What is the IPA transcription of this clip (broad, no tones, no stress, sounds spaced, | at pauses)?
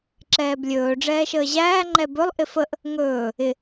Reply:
ǁ ɛː b lʲ ɵː ɖ͡ʐ ɛː ʃ əː ʑ æː ŋ͡ǃ ɛ b ɵ lˠ ʔ ɪ f ə ʔ | ŋ ɵː | ɪ